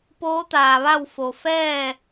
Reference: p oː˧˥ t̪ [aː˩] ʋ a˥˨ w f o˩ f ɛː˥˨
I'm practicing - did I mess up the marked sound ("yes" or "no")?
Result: no